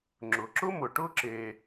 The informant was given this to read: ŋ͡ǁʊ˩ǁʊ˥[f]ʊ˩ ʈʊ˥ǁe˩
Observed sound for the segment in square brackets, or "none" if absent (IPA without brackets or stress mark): m